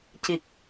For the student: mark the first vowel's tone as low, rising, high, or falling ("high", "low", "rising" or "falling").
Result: low